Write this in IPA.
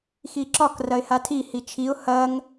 x i ǁ ɒ k r ɐ ɪ̯ h a tʰ i h i t͡ʃʰ i ʊ̯ h ɐ ŋ

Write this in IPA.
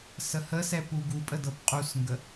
s ə h ə s ɛ p u ɡ u pʼ ə d ɤ p qʼ u s ŋ ɡ ə

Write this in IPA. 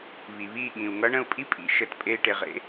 β i˩ β iː˥˩ ɠ ĩ˩ u̯ ŋ ʌ˧˥ ɳ ə̃˥˩ u̯ pʼ i˥ pʼ ḭ˧˩ ʃ ə˧˩ t pʼ e˧ i̯ ʈ e˩ ʁ ḛ˧

